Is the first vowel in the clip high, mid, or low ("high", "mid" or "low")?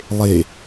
mid